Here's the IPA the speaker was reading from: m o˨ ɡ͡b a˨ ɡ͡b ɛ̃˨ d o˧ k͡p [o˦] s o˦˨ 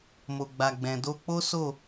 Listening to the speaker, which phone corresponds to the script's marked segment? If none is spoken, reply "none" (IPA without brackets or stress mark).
o˦